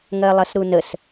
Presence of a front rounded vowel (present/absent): absent